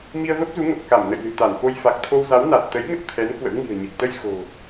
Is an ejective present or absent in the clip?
absent